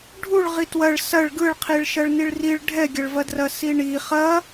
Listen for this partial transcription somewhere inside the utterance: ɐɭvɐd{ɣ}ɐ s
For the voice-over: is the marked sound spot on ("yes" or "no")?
no